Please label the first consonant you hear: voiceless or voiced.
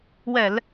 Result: voiced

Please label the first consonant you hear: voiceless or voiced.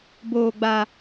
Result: voiced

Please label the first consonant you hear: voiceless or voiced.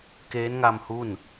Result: voiceless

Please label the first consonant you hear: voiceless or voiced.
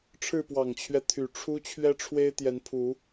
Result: voiceless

